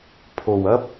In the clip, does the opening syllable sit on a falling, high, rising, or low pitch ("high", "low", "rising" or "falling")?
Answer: low